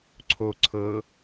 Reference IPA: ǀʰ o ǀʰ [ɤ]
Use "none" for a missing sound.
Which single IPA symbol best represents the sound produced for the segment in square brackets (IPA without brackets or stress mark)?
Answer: ɤ